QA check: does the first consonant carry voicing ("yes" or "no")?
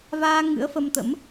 yes